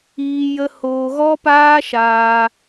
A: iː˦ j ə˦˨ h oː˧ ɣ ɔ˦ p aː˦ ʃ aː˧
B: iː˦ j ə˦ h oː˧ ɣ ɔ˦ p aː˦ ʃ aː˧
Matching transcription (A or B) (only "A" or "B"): B